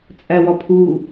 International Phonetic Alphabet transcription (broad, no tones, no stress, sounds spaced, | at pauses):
t͡sʼ æ w ɒ pʰ uː